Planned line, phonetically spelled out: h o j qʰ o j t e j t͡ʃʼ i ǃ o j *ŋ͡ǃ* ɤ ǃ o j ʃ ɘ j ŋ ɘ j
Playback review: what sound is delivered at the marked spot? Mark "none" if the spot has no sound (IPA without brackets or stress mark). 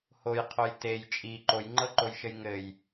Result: ŋ͡ǃ